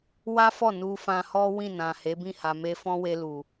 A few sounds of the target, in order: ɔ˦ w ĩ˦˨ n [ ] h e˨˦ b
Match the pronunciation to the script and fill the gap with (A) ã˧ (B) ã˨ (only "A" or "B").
B